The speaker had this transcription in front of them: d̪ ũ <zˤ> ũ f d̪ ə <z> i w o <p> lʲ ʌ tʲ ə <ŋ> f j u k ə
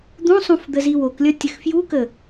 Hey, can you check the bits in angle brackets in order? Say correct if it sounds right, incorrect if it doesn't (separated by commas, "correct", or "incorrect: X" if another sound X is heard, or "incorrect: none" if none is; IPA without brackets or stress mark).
incorrect: sˤ, correct, incorrect: k, incorrect: x